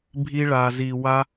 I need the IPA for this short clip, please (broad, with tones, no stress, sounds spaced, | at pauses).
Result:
bʱ i˦ ɭ a˧ z i˧ w a˦